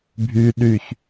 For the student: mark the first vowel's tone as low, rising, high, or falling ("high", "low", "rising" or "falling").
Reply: high